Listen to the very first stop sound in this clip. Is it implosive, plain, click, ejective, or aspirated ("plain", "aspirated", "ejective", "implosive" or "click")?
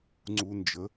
click